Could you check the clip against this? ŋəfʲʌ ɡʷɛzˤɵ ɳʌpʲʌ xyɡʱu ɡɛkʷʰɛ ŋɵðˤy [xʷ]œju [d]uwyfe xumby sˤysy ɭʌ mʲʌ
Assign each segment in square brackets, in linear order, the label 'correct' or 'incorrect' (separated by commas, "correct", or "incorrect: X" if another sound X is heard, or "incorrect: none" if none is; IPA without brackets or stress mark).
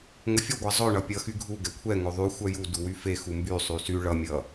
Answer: correct, correct